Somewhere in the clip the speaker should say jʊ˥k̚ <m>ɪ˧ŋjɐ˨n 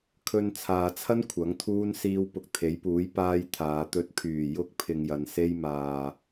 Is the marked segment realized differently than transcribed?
yes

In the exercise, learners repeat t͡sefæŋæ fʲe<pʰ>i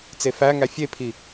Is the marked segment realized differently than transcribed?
no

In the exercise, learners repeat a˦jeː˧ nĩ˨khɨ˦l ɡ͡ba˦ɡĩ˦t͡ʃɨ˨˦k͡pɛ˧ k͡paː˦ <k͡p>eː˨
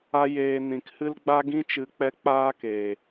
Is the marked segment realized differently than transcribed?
yes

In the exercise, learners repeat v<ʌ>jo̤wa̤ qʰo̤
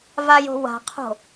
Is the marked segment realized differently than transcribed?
yes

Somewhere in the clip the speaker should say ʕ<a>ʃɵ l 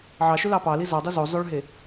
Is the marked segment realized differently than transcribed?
yes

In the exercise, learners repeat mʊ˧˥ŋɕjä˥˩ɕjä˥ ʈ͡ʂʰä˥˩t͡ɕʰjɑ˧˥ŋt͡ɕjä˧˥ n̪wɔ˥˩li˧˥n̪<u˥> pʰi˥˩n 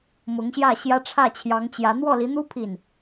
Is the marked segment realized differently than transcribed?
no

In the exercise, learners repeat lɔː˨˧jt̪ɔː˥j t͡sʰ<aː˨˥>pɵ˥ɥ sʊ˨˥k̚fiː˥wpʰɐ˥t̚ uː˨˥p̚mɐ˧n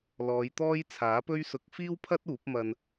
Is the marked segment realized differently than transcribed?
no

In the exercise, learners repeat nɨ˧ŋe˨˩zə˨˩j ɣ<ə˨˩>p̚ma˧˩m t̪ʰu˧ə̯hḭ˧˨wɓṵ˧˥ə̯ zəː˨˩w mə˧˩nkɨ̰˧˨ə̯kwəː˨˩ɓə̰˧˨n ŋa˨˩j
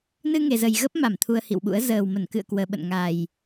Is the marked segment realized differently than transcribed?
yes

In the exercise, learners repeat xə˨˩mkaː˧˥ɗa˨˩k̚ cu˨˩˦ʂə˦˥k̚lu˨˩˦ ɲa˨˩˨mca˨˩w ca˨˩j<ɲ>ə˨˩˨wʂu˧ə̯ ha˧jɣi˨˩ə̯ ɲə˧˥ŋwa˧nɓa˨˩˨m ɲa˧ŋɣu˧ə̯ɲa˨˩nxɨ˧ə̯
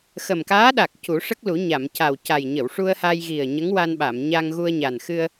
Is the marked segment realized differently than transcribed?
no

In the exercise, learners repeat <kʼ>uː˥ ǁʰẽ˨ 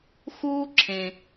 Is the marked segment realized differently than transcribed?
yes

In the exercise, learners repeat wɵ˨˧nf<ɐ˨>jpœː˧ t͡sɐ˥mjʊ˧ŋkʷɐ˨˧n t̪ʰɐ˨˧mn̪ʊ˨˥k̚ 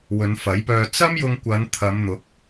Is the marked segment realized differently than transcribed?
yes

